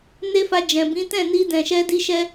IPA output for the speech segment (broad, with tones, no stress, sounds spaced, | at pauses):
n e˦ f a˧ d͡ʒ ɛ̃˨ b ĩ˨˦ t ɛ̃˦˨ n i˧ d ɛ̃˨ ʃ ɛ˧ d i˧ ʃ ɛ˧